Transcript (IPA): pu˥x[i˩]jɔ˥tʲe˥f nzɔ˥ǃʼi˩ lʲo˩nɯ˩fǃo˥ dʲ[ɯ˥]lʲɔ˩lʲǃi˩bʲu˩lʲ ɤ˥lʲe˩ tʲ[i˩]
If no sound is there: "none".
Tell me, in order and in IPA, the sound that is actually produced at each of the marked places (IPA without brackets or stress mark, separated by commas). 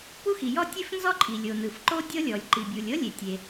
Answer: i˩, ɤ˥, e˩